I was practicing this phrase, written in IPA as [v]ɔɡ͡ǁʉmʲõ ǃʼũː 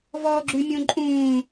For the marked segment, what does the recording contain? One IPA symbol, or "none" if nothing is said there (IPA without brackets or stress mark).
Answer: v